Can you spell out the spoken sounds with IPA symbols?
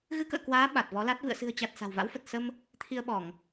ɣɨ˧kə̰ː˧˨kwaː˨˦ ɓa˨˩t̚vɔ˨˦la˦˥t̚ vɨ̰˧˨ə̯sɨ̤˨˩ə̯t͡ɕa˨˩t̚ sa̤˨˩wva̰˧˥wfə˨˩t̚ sə˧m | t̪ʰi˧ə̯ɓɔ˧˩˨ŋ

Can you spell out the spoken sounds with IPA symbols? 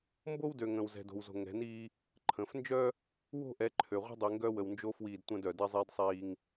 mbo˦wdø˨ ŋə̃ː˨wzɛ̤˨do̤˨wzo̤˨ ŋɛ̤˨˦niː˦ | ǃʰə̃ː˨f nd͡ʒœ˦ | wo̤˦˨ʔɛ˨˦ǃʰø˨ʁʷə̤˦ dˤi˨ŋɡœ˦wə˨wnd͡ʒo˦ fwiː˦˨dtʷə̃ː˦dœ˨ dɛ˦zˤiː˦dsˤiː˦ŋ

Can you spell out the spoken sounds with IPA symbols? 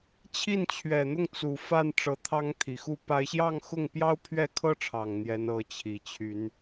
t͡ɕʰi˥˩nt͡ɕʰɥɛ˨˩n̪ʊ˥˩ŋ t͡su˨˩fa˥˩n ʈ͡ʂɤ˧˥t̪ʰɑ˥ŋt̪ʰi˨˩xu˥ pa˧˥ɪ̯ɕjɑ˥˧ŋ xʊ˥˩ŋpjɑ˥ʊ̯ pʰɥɛ˥˩kʰɤ˥ʈ͡ʂʰɑ˨˩ŋ n̪jɛ˧˥n ɤ˧˥t͡ɕʰi˨˩t͡ɕʰy˧˥n

